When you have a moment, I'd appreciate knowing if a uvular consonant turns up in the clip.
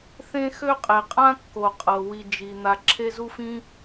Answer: yes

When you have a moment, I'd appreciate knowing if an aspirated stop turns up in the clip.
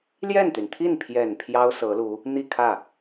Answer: yes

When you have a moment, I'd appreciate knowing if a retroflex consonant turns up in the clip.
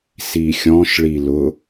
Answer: yes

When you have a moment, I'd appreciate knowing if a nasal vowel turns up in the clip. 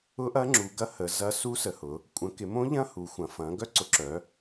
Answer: yes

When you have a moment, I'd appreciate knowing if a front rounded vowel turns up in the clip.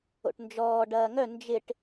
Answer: yes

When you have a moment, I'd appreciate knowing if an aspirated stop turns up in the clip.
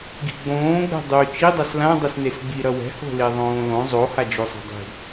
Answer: no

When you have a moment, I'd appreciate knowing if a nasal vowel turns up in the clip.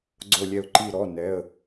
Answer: no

